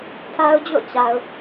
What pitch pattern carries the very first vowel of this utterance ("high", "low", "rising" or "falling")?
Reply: high